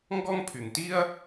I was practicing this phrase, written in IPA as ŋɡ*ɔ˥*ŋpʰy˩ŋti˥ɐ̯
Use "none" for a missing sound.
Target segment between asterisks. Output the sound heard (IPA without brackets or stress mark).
ɔ˥